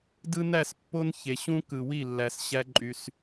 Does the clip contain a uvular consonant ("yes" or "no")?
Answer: no